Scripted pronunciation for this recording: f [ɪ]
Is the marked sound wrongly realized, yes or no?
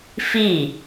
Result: yes